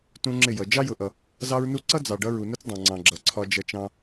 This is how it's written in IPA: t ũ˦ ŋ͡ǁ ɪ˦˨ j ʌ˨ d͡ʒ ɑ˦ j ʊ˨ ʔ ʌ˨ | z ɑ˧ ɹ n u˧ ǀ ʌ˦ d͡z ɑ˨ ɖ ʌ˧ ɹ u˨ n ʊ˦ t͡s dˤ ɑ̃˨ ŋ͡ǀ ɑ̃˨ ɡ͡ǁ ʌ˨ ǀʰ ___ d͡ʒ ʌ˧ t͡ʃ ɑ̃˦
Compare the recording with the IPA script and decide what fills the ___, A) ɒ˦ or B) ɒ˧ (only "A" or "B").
B